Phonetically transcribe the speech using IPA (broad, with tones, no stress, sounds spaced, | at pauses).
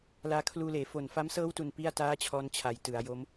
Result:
l aː˧ kʰ l uː˧ l eː˩˦ f o˨˩ n f a˦˥ m s ɤː˦˥ w t u˦˥ n p i˥˩ a̯ t aː˥˩ t͡ɕʰ ɔː˦˥ n t͡ɕʰ a˩˦ j t ɯ˩˦ a̯ j o˦˥ m